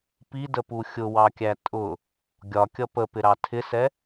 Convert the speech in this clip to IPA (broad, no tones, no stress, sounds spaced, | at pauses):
p i d ə p u xʲ ʊ w ɑ kʲ æ tʼ ʊ | ɡʲ ɒ kʲ ʌ p ə p ɪ ɾ ɑ tʰ ɪ s ɛ